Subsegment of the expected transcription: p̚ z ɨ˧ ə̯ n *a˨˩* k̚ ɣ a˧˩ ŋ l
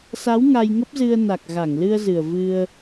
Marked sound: correct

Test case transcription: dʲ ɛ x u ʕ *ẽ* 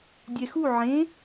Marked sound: correct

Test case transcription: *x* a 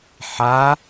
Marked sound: incorrect: ħ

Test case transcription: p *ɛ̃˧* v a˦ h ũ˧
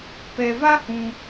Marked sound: incorrect: ɛ˧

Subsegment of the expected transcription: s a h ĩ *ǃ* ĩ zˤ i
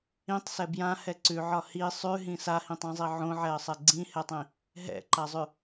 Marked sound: incorrect: tˤ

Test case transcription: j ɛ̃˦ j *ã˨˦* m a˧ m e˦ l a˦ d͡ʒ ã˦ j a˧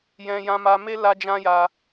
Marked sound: incorrect: ã˧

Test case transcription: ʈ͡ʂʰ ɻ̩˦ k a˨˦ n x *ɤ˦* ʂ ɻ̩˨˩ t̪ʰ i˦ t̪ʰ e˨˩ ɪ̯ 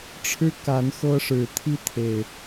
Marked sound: correct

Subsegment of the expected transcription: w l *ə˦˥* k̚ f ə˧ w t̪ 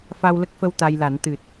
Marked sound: correct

